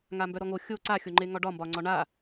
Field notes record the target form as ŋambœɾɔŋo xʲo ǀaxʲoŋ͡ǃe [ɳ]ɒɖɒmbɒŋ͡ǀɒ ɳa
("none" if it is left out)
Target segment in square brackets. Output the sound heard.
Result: ŋ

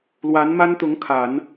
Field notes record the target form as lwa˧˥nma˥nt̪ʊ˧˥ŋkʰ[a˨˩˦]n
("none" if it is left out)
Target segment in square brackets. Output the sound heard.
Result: a˨˩˦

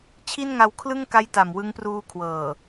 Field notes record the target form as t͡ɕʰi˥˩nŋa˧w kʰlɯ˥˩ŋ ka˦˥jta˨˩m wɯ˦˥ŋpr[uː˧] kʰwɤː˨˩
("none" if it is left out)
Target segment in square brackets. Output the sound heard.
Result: uː˧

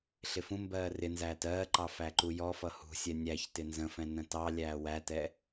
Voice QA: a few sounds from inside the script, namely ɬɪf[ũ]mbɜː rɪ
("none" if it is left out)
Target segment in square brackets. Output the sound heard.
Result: ũ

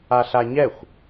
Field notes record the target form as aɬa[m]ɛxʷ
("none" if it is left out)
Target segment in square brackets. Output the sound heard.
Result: ɲ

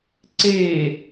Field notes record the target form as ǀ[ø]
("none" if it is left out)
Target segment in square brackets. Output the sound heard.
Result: e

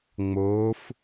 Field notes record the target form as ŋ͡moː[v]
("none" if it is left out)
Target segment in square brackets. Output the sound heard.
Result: f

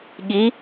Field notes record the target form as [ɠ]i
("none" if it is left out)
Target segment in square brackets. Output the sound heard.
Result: ɠ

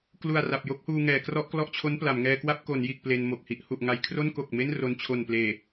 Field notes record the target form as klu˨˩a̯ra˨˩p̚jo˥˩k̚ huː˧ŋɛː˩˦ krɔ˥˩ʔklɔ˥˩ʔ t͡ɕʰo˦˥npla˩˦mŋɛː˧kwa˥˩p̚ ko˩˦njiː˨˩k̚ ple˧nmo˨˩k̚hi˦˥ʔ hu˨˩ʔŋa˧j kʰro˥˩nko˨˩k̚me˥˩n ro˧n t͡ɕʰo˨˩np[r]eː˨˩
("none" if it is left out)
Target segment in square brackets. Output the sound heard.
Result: l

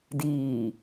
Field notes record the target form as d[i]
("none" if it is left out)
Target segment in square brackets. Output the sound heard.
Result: iː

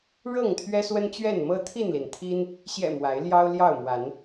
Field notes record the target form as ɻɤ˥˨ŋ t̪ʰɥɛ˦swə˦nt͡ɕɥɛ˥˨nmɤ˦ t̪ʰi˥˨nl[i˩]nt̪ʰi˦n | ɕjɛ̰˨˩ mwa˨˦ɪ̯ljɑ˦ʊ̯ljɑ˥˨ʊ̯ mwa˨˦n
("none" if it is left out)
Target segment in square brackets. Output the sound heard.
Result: i˩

